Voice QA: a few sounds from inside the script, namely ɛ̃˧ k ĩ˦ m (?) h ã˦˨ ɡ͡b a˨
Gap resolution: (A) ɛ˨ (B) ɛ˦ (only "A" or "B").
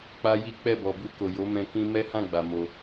B